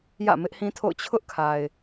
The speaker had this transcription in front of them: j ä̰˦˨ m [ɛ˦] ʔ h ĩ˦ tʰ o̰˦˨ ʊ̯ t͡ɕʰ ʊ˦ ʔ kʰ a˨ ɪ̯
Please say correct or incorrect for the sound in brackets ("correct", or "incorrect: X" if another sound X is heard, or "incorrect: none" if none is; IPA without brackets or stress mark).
incorrect: ɪ˦